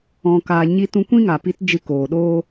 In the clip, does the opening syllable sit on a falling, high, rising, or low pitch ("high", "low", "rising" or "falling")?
low